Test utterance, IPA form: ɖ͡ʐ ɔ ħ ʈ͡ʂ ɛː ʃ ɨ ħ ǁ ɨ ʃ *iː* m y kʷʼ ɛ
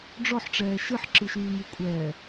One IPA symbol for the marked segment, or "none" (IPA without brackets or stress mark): yː